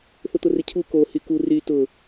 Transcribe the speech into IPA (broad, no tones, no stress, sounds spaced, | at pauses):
θ ʊ t̪ ʊ r ɪ cʰ u k o h y k u r y t ʊ